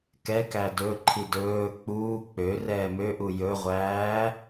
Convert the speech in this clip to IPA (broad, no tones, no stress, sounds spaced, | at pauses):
k ɛ k æ d ɵ ǃʰ i d ɵː k͡p uː k͡p ø r ɛː m ø ʔ u j ɵ ʁʷ æː